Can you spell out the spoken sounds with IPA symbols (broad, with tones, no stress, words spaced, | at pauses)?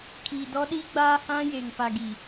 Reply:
kʰiː˨dɔ˦ ɗiː˦ɡ͡baː˦ hã˦je˨ŋ pa˨ɡi˨